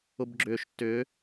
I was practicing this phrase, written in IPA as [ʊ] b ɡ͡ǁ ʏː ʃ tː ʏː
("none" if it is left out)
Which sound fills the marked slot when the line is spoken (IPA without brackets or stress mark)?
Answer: ʊ